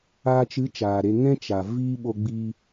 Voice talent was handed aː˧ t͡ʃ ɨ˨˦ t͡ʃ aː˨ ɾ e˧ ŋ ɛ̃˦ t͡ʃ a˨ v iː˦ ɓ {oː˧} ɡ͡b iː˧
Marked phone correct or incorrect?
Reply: incorrect